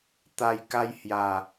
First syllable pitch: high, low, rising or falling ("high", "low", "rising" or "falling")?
low